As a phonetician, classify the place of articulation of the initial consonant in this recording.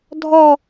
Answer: alveolar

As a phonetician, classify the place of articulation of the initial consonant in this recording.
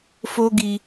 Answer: labial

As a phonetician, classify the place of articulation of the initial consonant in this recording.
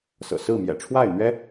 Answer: alveolar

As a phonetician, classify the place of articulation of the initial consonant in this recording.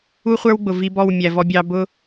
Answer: uvular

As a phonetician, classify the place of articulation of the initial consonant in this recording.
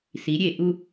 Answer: alveolar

